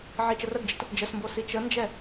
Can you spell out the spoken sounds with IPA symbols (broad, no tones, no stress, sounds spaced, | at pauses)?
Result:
ʕ i t͡ʃ ə r ə ɡ d͡ʒ ə t | d͡ʒ ə s m b o s i t͡ʃ ə n d͡ʒ ɛ